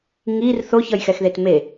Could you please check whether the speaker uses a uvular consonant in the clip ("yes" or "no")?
no